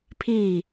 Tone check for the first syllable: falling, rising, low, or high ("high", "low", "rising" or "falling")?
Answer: falling